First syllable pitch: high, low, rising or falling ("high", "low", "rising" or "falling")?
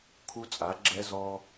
high